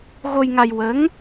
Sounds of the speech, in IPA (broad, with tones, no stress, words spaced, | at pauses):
ɣo˧jŋa˧j wə˧˥ŋ